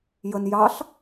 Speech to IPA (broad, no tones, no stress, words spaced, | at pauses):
jən jɑɬ